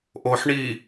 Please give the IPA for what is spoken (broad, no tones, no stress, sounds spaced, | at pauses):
ʔ o ħ ɳ i